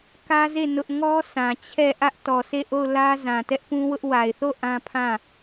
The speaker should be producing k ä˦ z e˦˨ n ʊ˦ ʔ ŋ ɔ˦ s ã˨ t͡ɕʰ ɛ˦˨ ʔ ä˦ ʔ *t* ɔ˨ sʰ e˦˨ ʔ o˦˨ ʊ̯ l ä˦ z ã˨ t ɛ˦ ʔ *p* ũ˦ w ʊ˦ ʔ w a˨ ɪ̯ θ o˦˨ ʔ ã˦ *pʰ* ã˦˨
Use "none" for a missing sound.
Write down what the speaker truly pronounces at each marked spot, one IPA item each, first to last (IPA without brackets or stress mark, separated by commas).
t, p, pʰ